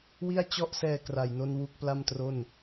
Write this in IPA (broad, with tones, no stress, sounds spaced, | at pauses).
w i˥˩ a̯ t͡ɕ ɔ˥˩ ʔ s ɛː˧ k r a˨˩ j n o˧ n w u˦˥ k̚ p l a˥˩ m t r o˥˩ n